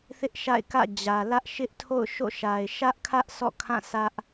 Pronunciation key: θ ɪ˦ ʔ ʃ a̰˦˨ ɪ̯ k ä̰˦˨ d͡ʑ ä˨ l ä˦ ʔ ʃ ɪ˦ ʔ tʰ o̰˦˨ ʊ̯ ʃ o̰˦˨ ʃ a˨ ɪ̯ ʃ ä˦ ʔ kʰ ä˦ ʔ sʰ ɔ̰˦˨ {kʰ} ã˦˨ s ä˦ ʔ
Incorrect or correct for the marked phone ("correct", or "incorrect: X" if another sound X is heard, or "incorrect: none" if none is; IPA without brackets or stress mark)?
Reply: correct